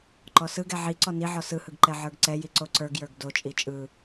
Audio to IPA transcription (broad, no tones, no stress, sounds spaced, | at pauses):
ǃ ɔ s ɯ ɡ ɛ ʕ i ǀ ɔ n i ʕ ɔ s ɯ h ɯ ɡ ǃ ɛ ʕ ə˞ ɡ ǀ ɛ j i ǀ o ǀ ə˞ ɡ j ə˞ ɡ d o t͡ʃʼ i t͡ʃʼ ɯ